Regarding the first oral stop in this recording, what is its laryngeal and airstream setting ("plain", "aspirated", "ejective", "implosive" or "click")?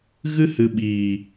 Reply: implosive